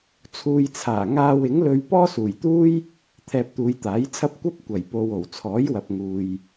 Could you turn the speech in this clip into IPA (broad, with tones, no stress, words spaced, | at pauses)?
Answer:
t͡sʰuː˨jt͡sʰaː˨˩ ŋaː˧wɪ˨˥ŋlɵ˧ɥ pɔː˥suː˨˩jt̪uː˥j | t̪ʰɛː˧p̚t̪uː˨˧jt̪aː˨˥jt͡sʰɐ˥p̚ kʷɐ˥p̚ kʷɐ˨˩jpo˨w o˨˩wt͡sʰɔː˨˥jwɐ˨p̚ ŋuː˨j